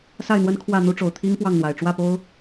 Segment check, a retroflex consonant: present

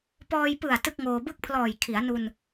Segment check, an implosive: absent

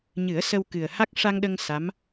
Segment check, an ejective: absent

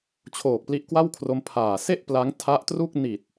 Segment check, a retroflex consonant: absent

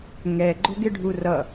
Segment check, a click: present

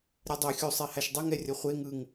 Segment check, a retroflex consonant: absent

